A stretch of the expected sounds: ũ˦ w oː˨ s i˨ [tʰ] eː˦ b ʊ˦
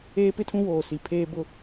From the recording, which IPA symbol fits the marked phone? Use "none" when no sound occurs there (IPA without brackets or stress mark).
pʰ